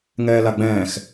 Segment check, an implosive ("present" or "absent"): absent